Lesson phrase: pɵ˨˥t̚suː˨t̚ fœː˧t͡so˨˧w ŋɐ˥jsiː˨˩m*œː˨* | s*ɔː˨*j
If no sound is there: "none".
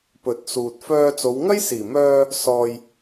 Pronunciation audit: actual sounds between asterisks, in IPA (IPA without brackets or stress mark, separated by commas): œː˧, ɔː˨